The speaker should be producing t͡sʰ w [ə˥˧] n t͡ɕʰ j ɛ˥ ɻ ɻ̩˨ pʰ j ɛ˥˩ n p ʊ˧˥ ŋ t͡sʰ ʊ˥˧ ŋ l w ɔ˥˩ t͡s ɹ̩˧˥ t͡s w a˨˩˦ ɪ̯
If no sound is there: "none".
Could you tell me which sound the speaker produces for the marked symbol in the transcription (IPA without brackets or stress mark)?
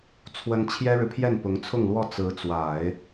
ə˥